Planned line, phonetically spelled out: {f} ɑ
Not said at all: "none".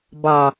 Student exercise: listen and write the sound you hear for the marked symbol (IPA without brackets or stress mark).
b